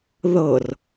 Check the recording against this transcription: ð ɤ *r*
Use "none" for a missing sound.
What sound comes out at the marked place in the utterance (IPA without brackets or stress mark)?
r